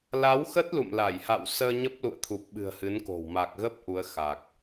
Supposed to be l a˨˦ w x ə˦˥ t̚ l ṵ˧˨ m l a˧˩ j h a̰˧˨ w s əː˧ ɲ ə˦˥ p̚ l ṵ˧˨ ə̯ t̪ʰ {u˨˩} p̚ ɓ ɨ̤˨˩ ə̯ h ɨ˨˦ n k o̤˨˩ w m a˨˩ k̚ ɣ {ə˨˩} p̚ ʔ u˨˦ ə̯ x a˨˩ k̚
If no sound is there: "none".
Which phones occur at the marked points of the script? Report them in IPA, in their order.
u˨˩, ə˦˥

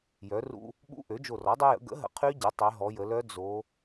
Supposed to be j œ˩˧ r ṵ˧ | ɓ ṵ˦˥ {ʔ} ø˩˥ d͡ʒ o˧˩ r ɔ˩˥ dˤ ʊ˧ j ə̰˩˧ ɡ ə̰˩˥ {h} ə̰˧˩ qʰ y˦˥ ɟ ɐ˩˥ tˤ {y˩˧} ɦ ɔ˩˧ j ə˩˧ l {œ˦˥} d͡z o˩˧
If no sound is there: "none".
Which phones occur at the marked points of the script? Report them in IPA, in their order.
ʔ, ɦ, y˩˧, œ˦˥

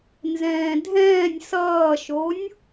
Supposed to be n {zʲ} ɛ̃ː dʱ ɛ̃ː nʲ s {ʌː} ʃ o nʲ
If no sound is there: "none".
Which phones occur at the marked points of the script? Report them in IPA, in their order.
z, ʌː

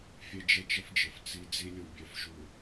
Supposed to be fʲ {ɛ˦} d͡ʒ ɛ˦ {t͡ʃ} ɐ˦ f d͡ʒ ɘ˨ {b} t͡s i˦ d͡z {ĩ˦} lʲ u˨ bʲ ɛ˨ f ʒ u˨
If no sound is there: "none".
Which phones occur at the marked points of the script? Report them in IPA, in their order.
e˦, t͡ʃ, f, i˦

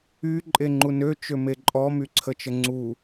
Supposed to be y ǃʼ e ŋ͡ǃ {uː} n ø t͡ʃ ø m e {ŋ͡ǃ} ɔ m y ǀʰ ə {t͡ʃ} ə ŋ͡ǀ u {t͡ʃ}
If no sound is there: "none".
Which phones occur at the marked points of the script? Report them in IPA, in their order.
u, ǃʼ, t͡ʃ, none

